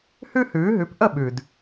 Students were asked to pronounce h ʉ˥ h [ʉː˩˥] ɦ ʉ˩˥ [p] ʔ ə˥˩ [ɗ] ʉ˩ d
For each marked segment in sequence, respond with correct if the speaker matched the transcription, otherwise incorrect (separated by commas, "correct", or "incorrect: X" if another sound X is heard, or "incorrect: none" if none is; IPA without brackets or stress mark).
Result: correct, correct, incorrect: ɓ